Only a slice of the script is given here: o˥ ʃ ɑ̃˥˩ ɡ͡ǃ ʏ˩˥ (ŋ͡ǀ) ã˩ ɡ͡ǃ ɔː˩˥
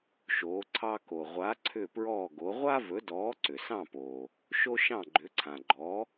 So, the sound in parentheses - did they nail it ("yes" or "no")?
no